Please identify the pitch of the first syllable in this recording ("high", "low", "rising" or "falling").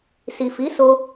low